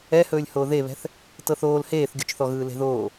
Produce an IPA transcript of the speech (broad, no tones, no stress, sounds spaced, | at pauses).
ɛ h ɵː lʲ h oː ð e β ɛ̤ θ | t ɤ θ oː l h eː θ ɡʲ o t͡ʃ θ ɔ ɣ ɯː l e̤ ð oː